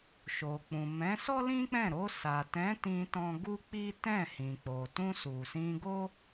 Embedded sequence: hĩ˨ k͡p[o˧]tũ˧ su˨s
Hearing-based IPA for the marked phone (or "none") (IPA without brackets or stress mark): o˨